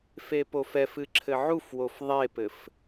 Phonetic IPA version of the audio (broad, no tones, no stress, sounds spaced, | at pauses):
f e p o f ɛ f ɨ ǁʰ ɘ ʕ u f w o f ðˤ e p ɘ f